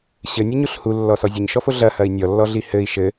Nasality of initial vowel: oral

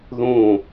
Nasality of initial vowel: nasal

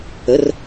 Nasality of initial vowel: oral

